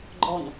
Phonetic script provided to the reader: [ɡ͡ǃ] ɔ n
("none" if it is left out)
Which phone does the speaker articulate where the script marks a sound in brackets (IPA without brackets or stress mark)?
ɡ͡ǃ